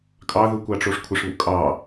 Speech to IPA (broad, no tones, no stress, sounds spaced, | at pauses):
kʼ ɑ ð u kʷ ɑ ʈ͡ʂ o ʂ kʷʰ ə ʂ β ṵ kʼ ɑ